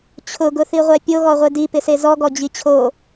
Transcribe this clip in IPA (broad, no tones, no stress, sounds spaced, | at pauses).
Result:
t͡ɕʰ ʊ ɡ ʊ θ i ʁʷ ɛ pʲ o ɣ ɔ ʁʷ e d i p ɪ s e z ɔ ɡ ɔ d͡ʑ i t͡ɕʰ o